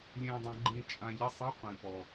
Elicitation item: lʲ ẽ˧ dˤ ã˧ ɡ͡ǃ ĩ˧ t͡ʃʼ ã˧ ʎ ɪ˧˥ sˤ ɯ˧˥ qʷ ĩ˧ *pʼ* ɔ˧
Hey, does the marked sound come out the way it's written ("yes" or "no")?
no